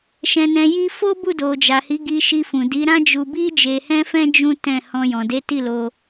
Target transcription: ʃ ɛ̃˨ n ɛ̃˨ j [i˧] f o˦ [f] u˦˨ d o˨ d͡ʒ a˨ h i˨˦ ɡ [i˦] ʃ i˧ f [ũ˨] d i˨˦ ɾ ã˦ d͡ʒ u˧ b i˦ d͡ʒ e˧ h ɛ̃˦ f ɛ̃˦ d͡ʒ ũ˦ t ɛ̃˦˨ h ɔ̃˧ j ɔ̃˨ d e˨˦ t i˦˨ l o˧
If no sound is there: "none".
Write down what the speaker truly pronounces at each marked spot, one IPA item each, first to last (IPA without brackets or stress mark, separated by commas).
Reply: i˧, b, i˧, ũ˨